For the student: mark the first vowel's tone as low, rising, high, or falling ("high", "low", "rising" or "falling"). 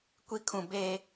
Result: high